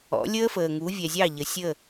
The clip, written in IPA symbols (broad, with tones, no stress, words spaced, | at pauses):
ɔ̰˨˦lʲəː˦fəː˨ŋu˨˦ vʲɛ˨zʲɑ˦˨ ʎə˨sʲə˦˨